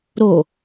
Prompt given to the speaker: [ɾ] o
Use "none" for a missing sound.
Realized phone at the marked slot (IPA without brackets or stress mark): ɾ